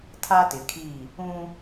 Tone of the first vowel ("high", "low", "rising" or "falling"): high